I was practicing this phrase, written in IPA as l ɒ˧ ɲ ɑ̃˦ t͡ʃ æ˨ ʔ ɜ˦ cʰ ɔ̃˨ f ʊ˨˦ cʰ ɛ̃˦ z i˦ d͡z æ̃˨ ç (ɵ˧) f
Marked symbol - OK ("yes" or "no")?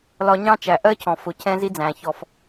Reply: no